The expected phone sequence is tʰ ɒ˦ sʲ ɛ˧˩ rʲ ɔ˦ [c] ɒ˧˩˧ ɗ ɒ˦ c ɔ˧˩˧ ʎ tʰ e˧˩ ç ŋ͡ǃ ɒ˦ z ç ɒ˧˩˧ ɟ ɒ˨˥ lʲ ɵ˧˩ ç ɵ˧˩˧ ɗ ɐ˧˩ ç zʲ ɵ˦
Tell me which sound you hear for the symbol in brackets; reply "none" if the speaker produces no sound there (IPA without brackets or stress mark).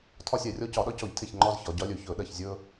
c